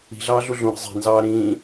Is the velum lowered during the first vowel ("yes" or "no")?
no